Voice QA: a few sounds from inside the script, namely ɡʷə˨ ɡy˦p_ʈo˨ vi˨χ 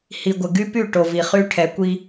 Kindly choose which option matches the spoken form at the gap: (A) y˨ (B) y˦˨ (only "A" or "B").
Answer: B